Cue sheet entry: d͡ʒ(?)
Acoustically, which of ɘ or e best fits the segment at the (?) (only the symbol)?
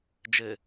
ɘ